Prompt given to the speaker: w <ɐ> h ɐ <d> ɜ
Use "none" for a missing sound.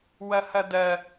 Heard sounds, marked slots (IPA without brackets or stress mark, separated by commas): ɐ, d